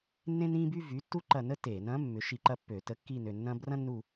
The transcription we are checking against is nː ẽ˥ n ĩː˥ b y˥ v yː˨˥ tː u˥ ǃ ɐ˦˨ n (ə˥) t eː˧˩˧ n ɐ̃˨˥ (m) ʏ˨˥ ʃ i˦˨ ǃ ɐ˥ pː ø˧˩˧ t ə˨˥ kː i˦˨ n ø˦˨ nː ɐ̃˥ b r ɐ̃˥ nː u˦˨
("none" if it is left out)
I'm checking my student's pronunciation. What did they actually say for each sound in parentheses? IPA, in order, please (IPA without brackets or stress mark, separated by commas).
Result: ə˥, mː